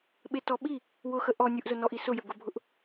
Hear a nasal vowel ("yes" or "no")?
no